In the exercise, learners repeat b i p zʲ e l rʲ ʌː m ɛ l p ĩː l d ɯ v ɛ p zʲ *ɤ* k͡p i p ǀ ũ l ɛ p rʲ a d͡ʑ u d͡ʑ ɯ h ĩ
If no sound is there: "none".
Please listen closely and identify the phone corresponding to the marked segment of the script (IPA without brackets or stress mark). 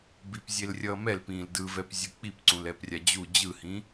ɯ